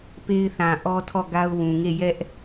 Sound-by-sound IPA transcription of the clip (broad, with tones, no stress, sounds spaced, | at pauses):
p e˦ ɪ̯ θ ã˨ ʔ ɔ˦ tʰ ɔ˦˨ ɡ a˦ ʊ̯ w ũ˨ ŋ e˦˨ j ɛ˦ ʔ